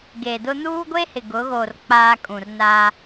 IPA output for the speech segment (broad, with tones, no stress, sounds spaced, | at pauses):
ɡ e˨ d ʊ˦ n uː˦ ɡʷ e˦ h ɪ˨ ɡ ʊ˨˦ ɣ oː˨ r k͡p aː˦ kʼ ũ˨ r n a˦